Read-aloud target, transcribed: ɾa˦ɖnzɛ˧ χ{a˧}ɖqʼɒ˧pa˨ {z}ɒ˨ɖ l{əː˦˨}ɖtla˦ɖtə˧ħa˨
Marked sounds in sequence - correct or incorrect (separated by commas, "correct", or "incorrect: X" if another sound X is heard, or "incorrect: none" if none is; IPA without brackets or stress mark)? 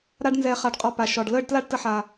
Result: correct, incorrect: ʃ, correct